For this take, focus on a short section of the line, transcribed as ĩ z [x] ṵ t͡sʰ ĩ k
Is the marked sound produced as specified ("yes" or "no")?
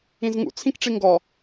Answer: no